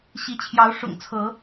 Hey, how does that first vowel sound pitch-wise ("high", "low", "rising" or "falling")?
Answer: rising